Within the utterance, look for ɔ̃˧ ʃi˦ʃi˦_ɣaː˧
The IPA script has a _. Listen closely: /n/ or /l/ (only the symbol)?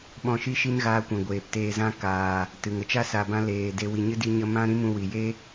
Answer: n